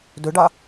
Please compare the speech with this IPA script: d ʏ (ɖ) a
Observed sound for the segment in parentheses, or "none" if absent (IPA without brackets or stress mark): ɖ